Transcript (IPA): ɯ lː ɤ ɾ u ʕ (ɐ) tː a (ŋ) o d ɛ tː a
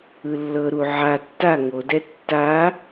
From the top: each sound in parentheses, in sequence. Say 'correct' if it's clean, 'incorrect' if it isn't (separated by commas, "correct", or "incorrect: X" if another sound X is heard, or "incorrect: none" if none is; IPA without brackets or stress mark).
incorrect: a, correct